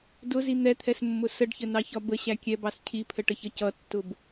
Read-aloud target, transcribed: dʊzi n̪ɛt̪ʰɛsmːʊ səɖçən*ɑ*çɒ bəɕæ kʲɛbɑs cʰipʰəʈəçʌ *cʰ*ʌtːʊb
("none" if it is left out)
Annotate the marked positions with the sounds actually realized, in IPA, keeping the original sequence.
ɑ, c

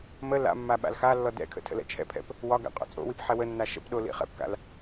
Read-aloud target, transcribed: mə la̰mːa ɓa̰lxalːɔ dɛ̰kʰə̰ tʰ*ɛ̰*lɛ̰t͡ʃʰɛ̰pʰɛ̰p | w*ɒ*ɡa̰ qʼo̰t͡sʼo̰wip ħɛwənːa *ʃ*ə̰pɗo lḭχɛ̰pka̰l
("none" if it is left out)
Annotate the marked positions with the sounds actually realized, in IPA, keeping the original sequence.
ə̰, ɒ, ʃ

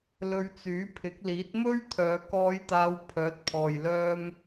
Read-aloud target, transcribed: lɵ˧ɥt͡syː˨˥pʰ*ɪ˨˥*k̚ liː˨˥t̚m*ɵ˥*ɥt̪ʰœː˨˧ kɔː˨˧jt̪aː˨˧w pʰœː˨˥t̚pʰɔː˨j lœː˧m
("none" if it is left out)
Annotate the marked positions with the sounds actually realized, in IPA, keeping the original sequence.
ɪ˨˥, ɵ˥

